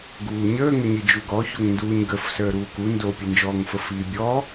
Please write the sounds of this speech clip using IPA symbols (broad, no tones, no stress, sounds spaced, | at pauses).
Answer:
ɡ uː ɲ əː ŋ ə ɲ i d͡ʒ u ɡ ɔ ç o ŋ n d uː ɲ ɡ ə f s əː ɾ uː k u n d o pʲ ə n d͡ʒ ɔː ŋ f ə f iː bʲ ɔ